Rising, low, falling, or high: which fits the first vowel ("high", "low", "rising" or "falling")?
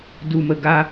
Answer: low